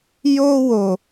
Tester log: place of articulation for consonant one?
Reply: palatal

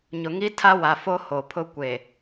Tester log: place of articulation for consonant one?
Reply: palatal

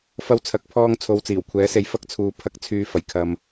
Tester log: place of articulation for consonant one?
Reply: labial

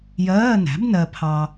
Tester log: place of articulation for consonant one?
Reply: palatal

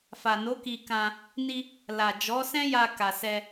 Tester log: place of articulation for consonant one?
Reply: labial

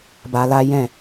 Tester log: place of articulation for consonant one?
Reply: labial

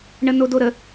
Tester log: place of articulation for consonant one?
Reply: retroflex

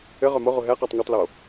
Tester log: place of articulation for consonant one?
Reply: uvular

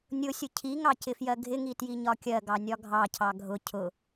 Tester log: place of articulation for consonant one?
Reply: alveolar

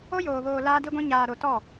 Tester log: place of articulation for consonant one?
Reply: palatal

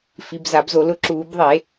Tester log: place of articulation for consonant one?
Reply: labial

